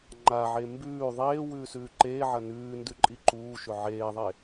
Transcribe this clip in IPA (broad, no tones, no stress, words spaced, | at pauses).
ŋ͡ǃaʕe mbʉː ðˤeː wʉːsʉːǃeːʕɐ nʉː ndʉǃʼiǃuːʃɵ ʕeːðˤe